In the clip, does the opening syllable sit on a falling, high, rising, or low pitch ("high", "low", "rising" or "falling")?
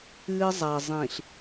high